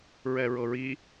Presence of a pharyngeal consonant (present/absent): absent